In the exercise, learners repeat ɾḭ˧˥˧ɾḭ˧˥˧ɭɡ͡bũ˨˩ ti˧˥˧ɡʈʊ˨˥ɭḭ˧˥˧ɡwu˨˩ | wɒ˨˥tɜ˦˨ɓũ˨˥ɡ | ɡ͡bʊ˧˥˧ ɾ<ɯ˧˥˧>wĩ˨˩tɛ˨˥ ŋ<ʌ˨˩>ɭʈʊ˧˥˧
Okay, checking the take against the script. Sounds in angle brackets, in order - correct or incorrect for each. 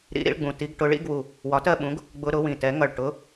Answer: incorrect: ʊ˧˥˧, correct

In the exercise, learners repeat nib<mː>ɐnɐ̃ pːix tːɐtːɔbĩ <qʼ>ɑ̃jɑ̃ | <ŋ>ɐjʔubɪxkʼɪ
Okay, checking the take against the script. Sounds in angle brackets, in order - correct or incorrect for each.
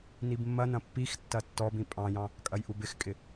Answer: correct, incorrect: pʼ, incorrect: kʼ

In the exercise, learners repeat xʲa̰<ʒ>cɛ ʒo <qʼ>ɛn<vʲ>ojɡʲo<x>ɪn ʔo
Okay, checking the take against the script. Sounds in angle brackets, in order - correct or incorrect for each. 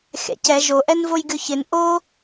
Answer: incorrect: none, incorrect: ʔ, incorrect: v, incorrect: ç

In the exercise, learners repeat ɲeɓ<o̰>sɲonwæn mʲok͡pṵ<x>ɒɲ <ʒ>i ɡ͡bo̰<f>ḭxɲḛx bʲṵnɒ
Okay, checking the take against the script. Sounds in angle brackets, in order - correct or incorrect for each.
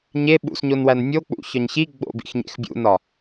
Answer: incorrect: ṵ, incorrect: ç, incorrect: ç, incorrect: b

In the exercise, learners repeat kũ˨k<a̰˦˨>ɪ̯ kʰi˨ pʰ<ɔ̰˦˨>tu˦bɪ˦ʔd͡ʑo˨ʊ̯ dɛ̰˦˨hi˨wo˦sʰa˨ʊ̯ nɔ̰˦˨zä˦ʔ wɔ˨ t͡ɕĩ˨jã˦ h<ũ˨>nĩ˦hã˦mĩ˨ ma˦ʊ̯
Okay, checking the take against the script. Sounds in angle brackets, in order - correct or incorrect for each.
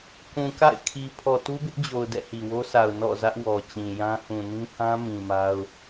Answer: correct, incorrect: ɔ˨, correct

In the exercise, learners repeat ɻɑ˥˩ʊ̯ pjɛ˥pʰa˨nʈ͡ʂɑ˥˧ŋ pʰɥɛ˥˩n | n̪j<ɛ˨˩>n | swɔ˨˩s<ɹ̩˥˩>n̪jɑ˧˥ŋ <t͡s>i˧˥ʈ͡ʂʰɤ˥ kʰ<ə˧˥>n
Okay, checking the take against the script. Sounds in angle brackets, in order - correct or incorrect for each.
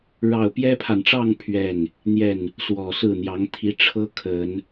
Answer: incorrect: ɛ˥˩, correct, incorrect: t̪ʰ, incorrect: ə˨˩˦

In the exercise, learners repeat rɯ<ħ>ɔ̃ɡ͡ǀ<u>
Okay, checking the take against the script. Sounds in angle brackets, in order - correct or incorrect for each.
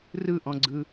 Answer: incorrect: ʔ, incorrect: ɯ

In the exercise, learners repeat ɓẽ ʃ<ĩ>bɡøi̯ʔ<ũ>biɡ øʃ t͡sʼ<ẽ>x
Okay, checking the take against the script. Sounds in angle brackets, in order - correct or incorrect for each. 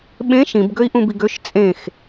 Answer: correct, correct, correct

